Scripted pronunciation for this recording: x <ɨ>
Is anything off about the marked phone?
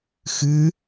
no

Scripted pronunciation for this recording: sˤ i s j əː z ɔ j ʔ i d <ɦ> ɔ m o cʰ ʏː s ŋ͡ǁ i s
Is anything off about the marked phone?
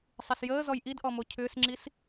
yes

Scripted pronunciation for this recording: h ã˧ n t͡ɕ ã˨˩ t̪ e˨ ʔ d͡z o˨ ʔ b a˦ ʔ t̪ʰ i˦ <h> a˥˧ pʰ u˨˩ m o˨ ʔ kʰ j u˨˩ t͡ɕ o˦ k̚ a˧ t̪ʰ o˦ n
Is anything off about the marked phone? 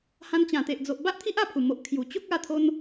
yes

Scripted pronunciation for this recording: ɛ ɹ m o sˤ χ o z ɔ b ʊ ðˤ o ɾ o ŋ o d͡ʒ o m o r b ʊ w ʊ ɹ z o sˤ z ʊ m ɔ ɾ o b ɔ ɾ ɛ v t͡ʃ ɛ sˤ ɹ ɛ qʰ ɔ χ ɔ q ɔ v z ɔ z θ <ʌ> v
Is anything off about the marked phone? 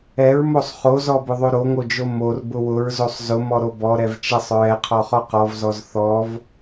yes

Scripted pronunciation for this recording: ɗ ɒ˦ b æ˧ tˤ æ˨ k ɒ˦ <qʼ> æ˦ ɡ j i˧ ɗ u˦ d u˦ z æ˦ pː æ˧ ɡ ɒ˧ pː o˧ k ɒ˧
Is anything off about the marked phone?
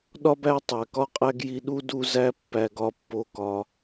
no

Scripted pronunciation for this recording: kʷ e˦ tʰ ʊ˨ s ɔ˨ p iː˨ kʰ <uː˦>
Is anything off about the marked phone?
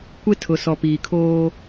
yes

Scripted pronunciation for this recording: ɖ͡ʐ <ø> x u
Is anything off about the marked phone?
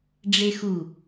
yes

